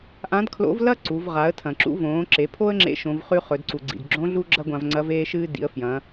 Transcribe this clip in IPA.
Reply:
ʔ ã˧˥ d kʰ l o̰˧˥ v l ɐ˥ ǀ u˩˧ v ʁ a˩˧ ə̯ tʰ ɐ̃˩ ǁ ṵ˧ v õː˩˧ ǁ e˩˧ pʰ o˥ ə̯ ŋ͡ǁ ḛ˧˥ ʃ õ˩˧ v χ ʉ˧˥ χ ɵ˩˧ d ǀ u˩ ɡ͡ǀ ḭ˩ d ɡ͡ǁ õ˧˥ ɮ u˥ ɡ͡ǁ ɐ˥ ɡʷ ã˧ v ŋ͡ǀ ɐ˧˥ v eː˧ ʃ ɨː˧ d ḭ˩˧ ə̯ f j ɐ̃˩˧

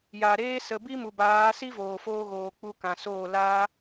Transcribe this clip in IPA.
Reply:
j a˨ ɾ eː˦ s ə˧ b i˦ m u˨ b aː˨˦ s i˦ v oː˨ f oː˧ ɣ oː˨ k͡p u˧ k ã˨ s oː˦˨ l aː˦

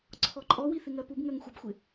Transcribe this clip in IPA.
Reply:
ǀʰ ɔ ǃʼ ɔ w i θ ɪ ŋ ɜ p u b ŋ ɜ ŋ xʷ ʌ b xʷ ɪ

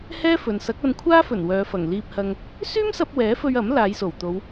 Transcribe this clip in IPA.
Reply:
h ɛː˥ f ɵ˨ n s ɐ˨˥ k̚ ɐ˧ n kʷʰ aː˥ f ɵ˨˩ n w œː˨˧ f ɐ˨˩ ŋ l iː˧ p̚ h ɐ˧ ŋ | s yː˥ m s ɐ˧ p̚ w ɛː˨˥ f ɵ˧ ɥ ɐ˨˥ m l aː˨˧ j s o˨˩ w t̪ o˨˧ w

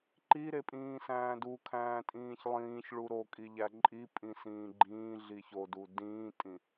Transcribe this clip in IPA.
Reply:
ǃ i ɾ e pʼ ĩː s æ̃ː d u kʰ æ̃ː tʼ ĩː ç lˠ ĩː ç ɭ u ɾ o kʼ i ʎ æ ǃʼ i pʼ ĩ s ĩː ɡ͡ǃ ĩː ɮ i ç o d u d ĩː tʼ ĩ

